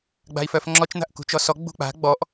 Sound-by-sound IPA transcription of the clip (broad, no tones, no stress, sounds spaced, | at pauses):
ɡ͡b a̤ i̯ f œ f ŋ͡ǁ ɔ t͡ʃ n̪ a̤ ʔ k ṳ t͡ʃ ɔ s ɔ ɡ͡b ṳ k͡p a̤ ɡ͡b ɔ ʔ